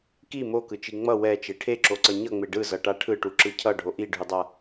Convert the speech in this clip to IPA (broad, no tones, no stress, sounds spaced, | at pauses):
k i m o k ɯ t͡ʃ i ŋ͡m ʌ w ɛ t͡ʃ e ʈʰ e ǁ o ǀ ʌ ɲ ʌ ŋ͡m e ɖ ɯ z ʌ ʈ a ʈʰ ɯ ʈ u ǁ ɯ cʰ ʌ ɖʱ o ʔ i ɖʱ u dˤ a